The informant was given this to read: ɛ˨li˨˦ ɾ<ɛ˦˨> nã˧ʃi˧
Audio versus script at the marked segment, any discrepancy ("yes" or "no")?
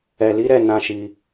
no